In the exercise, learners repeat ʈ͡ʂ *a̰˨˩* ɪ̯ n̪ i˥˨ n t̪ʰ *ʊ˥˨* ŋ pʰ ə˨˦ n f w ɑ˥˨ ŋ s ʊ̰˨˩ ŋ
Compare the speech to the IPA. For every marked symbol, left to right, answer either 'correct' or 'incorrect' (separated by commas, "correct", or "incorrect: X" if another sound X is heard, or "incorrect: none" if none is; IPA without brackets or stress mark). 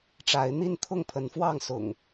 incorrect: a˨˦, correct